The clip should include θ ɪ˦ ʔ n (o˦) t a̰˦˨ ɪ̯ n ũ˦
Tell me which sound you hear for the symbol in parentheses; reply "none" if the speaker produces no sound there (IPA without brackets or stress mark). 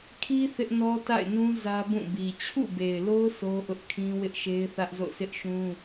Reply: ɔ˦